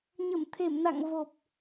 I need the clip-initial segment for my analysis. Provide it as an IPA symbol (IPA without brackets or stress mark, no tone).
ɲ